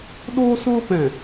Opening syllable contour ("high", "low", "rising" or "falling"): high